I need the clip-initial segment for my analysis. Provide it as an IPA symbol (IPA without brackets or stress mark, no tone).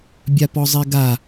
bʲ